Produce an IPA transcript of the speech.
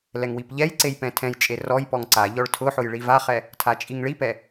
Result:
l ɛ ŋ w i p ʎ ɛ j ǀ e j p ɛ̃ tʰ ɛ̃ j t͡ʃʼ e r ɔ j p ɔ ŋ ǀ a ʎ ɔ ɭ tʰ ʊ ħ ʊ j ɭ i v a χ ɛ | tʰ a t͡ʃʼ i ŋ ɭ i p ɛ

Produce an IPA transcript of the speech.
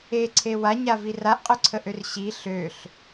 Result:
e ǀʰ e w a ɲ a v i r a ʔ qʼ ø ǀʰ ə ʔ ø r ɕ i ɬ ø ɬ

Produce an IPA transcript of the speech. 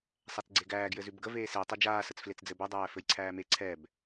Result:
sˤ æ t͡s ɡ͡ǀ e ɡ æː ɡ j ɘ z ʉ b ɡ ə v eː s e tˤ ɛ d͡ʒ aː s ə t͡s f l e t͡s d͡z ɘ b ɛ dˤ æː f ɘ j ǀʰ æː m e ǀʰ ɛ b

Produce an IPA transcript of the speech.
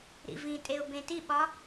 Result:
ɾ ḭ v ĩ tʼ e ʊ̯ b ẽ t i ɓ ɒ

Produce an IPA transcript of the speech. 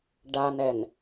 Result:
ɖ a n ɛ n

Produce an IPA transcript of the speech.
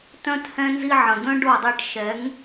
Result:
t œ̃˦ t h ɛ̃˦ n z i˦ ʕ ə̃˨ d̪ œ̃˦ ɖ o˦˨ dˤ e˦ ʈ ʃ ɛ˨˦ ŋ

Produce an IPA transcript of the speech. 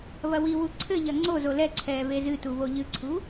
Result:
β ɐ w i w u ǀʰ ɘ ʎ ɐ ŋ͡ǀ o z o l ɛ ǀʰ ɛː β e z ɨ t u β o ʎ ɨ ǀʰ u

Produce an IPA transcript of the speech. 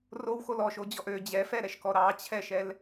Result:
r o w x o l ɔ ʃ o d͡ʑ ɔ ʔ ø d͡ʑ ɛ f ɛ ɾ ɛ ʃ k ɔ ɾ ɑ t͡ɕʰ ɛ ʃ ɛ l

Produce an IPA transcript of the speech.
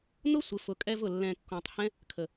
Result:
n̪ ʊ˦ sʷ ɪ˨ f ʊ˨ kʼ ɛ˧ v ʊ˨ lː ɛ̃˨ kː õ˨ tˤ h ɛ̃˦ | kʰ ə˨

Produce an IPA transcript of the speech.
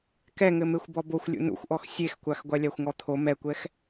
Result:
k ɛ ŋ ɘ m e xʷ b ɔ b o xʷ lʲ ṵ n ṵ xʷ ʔ ɔ x sʲ e x kʷ a x ɡʷ a lʲ a xʷ ŋ ɔ t̪ʰ o m ɛ kʷ ɛ x

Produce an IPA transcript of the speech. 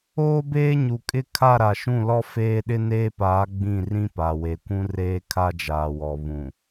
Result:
oː˦ b eː˦ ɲ u˨ kʼ ɪ˦˨ kʰ a˦˨ ɾ a˨ ʃ ũ˦˨ l ɔ˦ f eː˦ ɗ ɪ˦ n eː˦ p aː˨˦ ɡ͡b ĩ˦˨ r ĩ˦ p a˨ w e˨ kʷ ũ˦ r eː˦ kʰ a˦ d͡ʒ aː˨ w ɔ˨ β ũ˨

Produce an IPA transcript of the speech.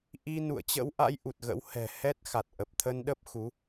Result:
ʔ i˧ n ṵ˧˨ ə̯ t͡ɕ ə̰˧˥ w ʔ a̰˧˥ j ʔ u˨˩ t̚ ɣ ə̰˧˥ w h ɛ̤˨˩ h ɛ˦˥ t̚ x a˨˩ t̚ ʔ ə˨˩ p̚ t̪ʰ ə˧ n ɗ ə˦˥ p̚ x u˨˦

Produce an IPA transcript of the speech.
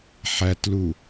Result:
ħ æ t l u

